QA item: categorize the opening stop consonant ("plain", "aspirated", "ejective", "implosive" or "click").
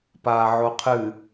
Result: plain